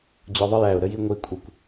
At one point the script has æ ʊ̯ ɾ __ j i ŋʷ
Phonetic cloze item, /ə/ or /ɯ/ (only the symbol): ə